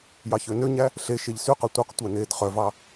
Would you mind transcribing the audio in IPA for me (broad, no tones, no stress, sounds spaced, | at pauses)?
j ɑ ç ø n ø ɲ æ | ɬ e ʃ e ʎ s y q œ tʷ œ q tʷ æ n eː d χ œ v ɑ